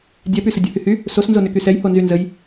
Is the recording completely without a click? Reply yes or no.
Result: yes